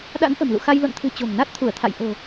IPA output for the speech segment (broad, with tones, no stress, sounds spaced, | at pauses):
ɗ a̰˧˥ n ʔ ə̤˨˩ m l ṵ˧˨ x a˧ j l o̰˧˨ n t̪ʰ ɨ̤˨˩ t͡ɕ o̤˨˩ ŋ n a˦˥ t̚ t̪ʰ u˧˩ ə̯ t̪ʰ a̰˧˨ j ʔ o̤˨˩